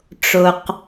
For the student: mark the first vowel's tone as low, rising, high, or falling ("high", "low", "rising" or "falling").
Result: low